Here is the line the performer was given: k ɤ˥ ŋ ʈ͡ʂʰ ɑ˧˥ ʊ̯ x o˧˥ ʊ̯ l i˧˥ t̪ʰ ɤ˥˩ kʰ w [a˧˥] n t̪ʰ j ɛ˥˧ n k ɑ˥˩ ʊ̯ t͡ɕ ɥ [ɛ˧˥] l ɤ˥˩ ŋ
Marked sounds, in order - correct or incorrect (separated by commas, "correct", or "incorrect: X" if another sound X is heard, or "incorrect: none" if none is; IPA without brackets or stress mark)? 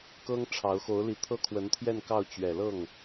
incorrect: ə˧˥, incorrect: ɛ˨˩